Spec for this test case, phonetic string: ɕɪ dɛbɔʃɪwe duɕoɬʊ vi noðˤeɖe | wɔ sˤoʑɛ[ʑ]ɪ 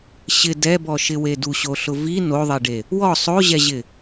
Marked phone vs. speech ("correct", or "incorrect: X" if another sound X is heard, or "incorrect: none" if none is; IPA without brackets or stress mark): correct